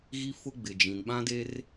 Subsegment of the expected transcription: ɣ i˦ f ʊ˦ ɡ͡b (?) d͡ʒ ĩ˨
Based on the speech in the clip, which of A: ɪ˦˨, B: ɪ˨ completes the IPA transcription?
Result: B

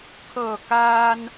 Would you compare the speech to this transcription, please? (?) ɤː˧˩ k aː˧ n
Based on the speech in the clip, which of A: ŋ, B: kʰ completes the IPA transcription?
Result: B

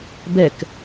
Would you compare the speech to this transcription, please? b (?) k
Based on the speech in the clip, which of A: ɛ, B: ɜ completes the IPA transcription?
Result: A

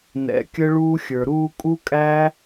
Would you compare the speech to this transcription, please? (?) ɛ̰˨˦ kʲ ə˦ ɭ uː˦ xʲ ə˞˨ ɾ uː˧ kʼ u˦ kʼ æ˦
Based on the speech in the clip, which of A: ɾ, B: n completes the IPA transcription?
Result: B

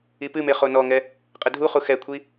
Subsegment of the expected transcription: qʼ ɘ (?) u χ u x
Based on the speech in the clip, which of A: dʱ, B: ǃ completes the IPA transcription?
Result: A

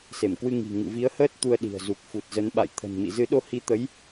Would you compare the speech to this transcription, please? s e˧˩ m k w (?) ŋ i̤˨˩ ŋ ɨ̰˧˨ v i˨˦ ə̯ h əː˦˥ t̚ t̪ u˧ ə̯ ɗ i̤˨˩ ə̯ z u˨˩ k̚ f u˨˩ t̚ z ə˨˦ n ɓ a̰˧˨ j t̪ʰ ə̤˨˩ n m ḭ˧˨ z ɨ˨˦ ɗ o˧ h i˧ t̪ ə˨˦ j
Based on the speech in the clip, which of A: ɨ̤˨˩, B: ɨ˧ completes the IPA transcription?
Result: B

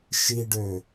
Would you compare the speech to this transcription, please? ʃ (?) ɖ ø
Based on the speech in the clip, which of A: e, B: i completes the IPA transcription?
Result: B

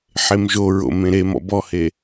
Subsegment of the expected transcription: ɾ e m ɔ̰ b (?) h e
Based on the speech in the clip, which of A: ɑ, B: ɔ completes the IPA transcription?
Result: B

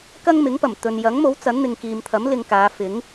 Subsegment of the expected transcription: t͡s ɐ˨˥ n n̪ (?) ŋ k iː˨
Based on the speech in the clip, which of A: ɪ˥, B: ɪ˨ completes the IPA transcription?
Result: B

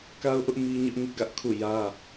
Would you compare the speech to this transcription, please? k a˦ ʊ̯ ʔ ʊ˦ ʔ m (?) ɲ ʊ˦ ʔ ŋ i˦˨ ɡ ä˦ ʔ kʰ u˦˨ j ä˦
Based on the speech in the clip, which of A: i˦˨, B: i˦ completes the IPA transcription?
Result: B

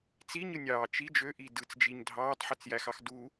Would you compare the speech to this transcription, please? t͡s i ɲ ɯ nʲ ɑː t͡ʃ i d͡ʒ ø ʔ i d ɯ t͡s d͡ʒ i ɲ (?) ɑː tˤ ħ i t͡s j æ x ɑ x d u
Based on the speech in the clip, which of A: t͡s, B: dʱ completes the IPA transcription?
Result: B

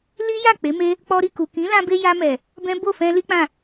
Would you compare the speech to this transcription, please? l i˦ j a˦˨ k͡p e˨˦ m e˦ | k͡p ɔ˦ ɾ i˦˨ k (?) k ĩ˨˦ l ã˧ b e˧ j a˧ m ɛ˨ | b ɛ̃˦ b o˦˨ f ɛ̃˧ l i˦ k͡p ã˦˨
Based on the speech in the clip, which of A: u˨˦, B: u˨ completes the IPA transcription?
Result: B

